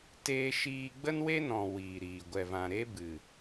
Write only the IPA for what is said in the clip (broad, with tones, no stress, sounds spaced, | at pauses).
t eː˦ ʃ iː˦ ɡ͡b ə˦ n w e˦ n ɔ̃˨ w iː˨ ɾ iː˨ ɡʷ ɛ˨ v ã˨ ɾ e˧ b ɨ˨